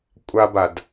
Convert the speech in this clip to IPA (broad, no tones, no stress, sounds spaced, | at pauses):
kʷʼ a b a d